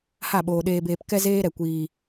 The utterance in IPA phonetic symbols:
ha˦˨ɓoː˨ ɗeː˨beː˨p kɛ˦ zeː˦ɾɛ˨kʷiː˨

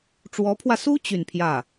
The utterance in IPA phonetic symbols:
ʈ͡ʂwɔ˧˥pʰwä˧su˥ t͡ɕy˥˧npʰjä˥˩

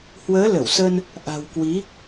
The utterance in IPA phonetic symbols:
hwəː˨˦ lə˧˩wsə˧n | ʔa̤˨˩wkwi˨˦

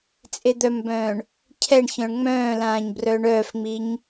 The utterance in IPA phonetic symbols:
t͡sʼed̪œmbœ̃ːɳ | cʰɛɳçœ̃ɳ ŋ͡mœ̃ːlãːɲ brœːɳœːfŋ͡miɲ

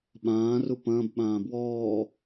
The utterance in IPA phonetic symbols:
ɓãːru pɐ̃ːbɓãː bwɔː

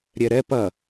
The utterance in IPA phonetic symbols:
ɾʲɛɾɛ pɐ

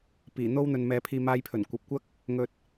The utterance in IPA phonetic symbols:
piː˨˩n̪o˥w n̪ɵ˧nmɛː˧pʰiː˧ maː˧jpʰɵ˨˩nkʷɐ˨p̚kʷɐ˥k̚ | ŋɵ˧t̚

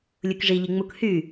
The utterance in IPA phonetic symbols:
lʲukʐi ʎiŋ͡muk hy

